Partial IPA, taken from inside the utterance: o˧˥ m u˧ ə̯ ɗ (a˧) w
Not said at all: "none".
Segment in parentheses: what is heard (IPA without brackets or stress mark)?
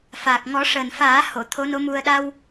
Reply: a˧